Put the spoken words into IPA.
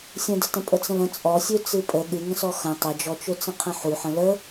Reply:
sʲ ə̃ d ə t ə̃ pʼ ə t͡s ə̃ l ə̃ t͡sʼ ɔ sʲ ø t͡s ɨ pʼ ə ɠ ɨ ŋ ə̃ s ɔ x ə̃ tˤ ə d͡ʒ ɔ t͡ʃ ø t͡s ə̃ qʰ ə̃ ħ u ħ ə̃ l ə

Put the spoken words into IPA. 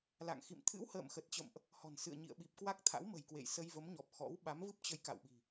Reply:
l a̰˧˨ ŋ x ḭ˧˨ m t̪ʰ ɨ̰˧˥ w h ə̰ː˧˨ m x ə˨˩ t̚ t͡ɕ ə̰˧˨ m ʔ | h ɔ̤˨˩ n s ɨ̰˧˨ ə̯ ɲ ḭ˧˨ ə̯ ɓ i˨˩ p̚ k w a˦˥ k̚ t̪ʰ a̰˧˥ w m ə̤˨˩ j k w ḛ˧˨ j s ə˧ j v ə˨˦ m ɲ ɔ˨˩ p̚ x ɔ̰˧˥ w ɓ a˨˦ m v ɨ˦˥ p̚ t͡ɕ ə˨˦ j k a̰˧˨ w ɓ i̤˨˩

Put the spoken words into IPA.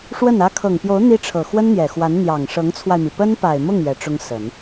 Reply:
ʂ w ə˥˩ n ä˥ kʰ ɤ˨˩ ŋ p j o˧˥ ʊ̯ n̪ i˥ ʈ͡ʂʰ ɤ˨˩ x w ə˥ n n̪ j ɛ˨˩ x w a˧˥ n n̪ j ɑ˨˩ ŋ ʂ ɤ˧˥ ŋ t͡sʰ w a˧ ɪ̯ m i˩ p ə˥ n p a˨˩ ɪ̯ m ʊ˥˩ ŋ ɥ ɛ˧˥ ʈ͡ʂ ʊ˥ ŋ s ə˨˩˦ n

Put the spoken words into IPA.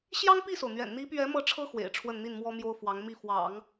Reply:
ɕ j ɑ˥ ŋ p i˥˩ s o˩ ʊ̯ n̪ ɥ ɛ̰˨˩ n n̪ i˧˥ p ɥ ɛ˧˥ m ɤ˥˩ ʈ͡ʂʰ ɤ˥ x w ḛ˨˩ ɪ̯ ʈ͡ʂʰ w ə˥˧ n n̪ i˥˩ n m w ɔ˥ m j o˥ ʊ̯ f w ɑ˧˥ ŋ m i˥˩ f w ɑ̰˨˩˦ ŋ

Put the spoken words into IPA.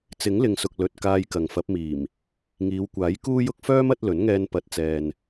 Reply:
t͡s ɪ˨˥ ŋ l ɪ˨ ŋ s ʊ˨ k̚ l ɵ˧ t̚ k aː˧ j k ɐ˨ ŋ f ɐ˨˥ p̚ m iː˨˩ m | ŋ iː˨˧ w kʷ aː˨˥ j k uː˥ j ʊ˥ k̚ f œː˥ m ɐ˨˥ t̚ l ɵ˨˥ n ŋ ɛː˧ n p ɐ˨˥ t̚ t͡s ɛː˨ n

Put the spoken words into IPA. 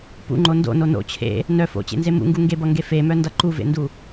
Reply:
p ṵ ŋ͡ǃ o n d o̰ n o n o̰ t͡ɕʰ ḛ | n œ f o̰ t͡ɕ ḛ n z e m ṵ ŋ ɡ u ŋ ɡ e b ʌ ŋ ɡ e f e m œ n d ʌ ǃ u v ḛ n d u

